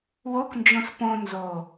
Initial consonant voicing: voiced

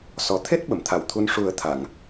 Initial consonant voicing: voiceless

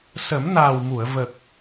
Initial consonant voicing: voiceless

